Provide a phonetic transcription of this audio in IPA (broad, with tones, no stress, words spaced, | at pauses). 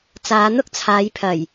t͡saː˨˧n̪ʊ˥k̚t͡sʰaː˨˧j pʰɐ˨˩j